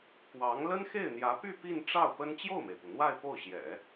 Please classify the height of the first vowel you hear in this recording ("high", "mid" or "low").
low